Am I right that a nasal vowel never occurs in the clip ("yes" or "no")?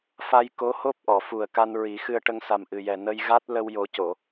yes